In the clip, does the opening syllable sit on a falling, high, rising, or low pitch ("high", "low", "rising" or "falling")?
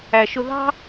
low